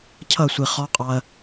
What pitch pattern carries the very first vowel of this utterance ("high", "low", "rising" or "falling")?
falling